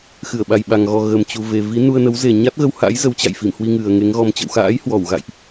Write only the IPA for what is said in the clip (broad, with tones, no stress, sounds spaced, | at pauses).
x ɨ˧˩ ə̯ ɓ a˨˩ j ɓ a˨˩ ŋ ɣ ɔ˨˩ ɣ ə˨˩ m t͡ɕ u˨˩ v e˨˩ v i˨˦ n u˧ ə̯ n ə˨˦ w z e˨˩ ɲ a˦˥ t̚ ɣ ə˧ w h a̰˧˥ j z ə˨˦ w t͡ɕ a̰˧˨ j f i˧˩ m h w i˧ ŋ ɨ˨˩ ə̯ ŋ e˨˦ ŋ ɣ ɔ˧ m t͡ɕ ə̰˧˨ w x a̰ː˧˥ j h w ɔ˧˩ w ɣ a̰˧˨ j ʔ